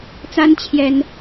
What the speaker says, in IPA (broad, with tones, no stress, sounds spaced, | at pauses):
t͡s a˦ n t͡ɕʰ j ɛ˦ n